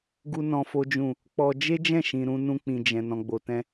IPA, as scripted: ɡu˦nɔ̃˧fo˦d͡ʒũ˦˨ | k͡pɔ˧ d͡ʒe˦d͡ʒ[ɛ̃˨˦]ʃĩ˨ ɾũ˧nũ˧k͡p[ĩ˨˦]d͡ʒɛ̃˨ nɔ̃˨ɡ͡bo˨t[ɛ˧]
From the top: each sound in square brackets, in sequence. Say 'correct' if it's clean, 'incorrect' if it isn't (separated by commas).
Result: incorrect, incorrect, incorrect